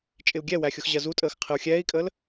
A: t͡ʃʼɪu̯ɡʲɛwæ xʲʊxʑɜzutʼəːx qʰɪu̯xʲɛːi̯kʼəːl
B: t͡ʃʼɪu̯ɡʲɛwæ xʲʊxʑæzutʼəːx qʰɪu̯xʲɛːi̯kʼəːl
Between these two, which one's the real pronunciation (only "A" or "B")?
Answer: A